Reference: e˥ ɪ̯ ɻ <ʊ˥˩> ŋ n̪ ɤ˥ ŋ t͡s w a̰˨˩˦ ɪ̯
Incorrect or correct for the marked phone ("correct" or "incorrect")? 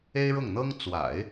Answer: correct